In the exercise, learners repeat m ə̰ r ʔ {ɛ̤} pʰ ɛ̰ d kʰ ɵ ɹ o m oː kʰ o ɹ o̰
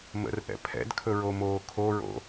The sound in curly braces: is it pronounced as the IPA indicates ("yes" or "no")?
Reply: no